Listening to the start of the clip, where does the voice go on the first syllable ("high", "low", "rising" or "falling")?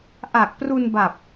low